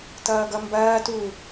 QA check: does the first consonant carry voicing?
no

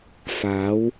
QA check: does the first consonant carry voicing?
no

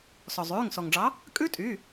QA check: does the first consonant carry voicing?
no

